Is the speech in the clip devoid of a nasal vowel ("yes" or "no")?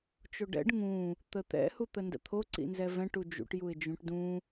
no